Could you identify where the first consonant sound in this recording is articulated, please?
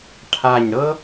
retroflex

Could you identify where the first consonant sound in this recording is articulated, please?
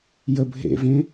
palatal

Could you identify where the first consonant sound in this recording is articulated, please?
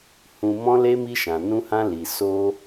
glottal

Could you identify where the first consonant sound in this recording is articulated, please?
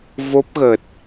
labial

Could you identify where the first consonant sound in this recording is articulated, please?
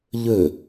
palatal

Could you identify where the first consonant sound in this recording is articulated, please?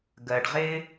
velar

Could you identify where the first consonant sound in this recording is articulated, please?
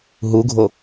glottal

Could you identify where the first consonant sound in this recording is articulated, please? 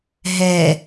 glottal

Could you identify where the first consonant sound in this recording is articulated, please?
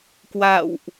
velar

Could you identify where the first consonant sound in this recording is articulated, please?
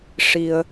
retroflex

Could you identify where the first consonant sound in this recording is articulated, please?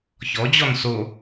palatal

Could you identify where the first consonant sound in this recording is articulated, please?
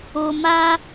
labial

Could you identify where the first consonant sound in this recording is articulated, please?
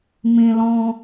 labial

